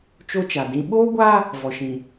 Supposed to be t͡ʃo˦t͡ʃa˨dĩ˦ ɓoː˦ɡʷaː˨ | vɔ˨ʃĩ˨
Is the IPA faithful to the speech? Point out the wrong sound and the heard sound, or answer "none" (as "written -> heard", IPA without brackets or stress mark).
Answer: aː˨ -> aː˦